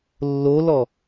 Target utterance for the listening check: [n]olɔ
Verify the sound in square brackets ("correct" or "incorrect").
incorrect